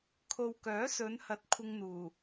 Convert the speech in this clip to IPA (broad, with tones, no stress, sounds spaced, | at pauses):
kʰ o˨ w k œː˨˥ s ɵ˨˧ n h ɐ˨˥ t̚ kʷʰ ɪ˧ ŋ n̪ uː˨˩